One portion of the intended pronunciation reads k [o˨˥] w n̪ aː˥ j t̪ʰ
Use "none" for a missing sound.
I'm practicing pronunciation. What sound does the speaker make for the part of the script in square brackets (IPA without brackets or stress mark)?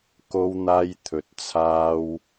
o˥